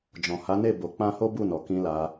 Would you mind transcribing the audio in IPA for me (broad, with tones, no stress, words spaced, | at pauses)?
d͡ʒɔ̃˨ha˨˦ne˦˨ bo˨˦k͡pã˦ ho˦bu˦˨nɔ˨kĩ˧ la˧